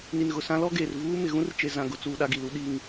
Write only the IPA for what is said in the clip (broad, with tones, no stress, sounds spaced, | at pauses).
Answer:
n i˨ n ɣ ʊ˨ s ã˦ l ɔ˦ ɡ eː˨ r v uː˦ m ɪ˨ ɣ ũ˦ r t͡ʃ e˨ z ã˨ ɡ ʊ˨ t͡s uː˨ ɗ a˦ ɡ i˨ l u˦ ɗ i˦ ŋ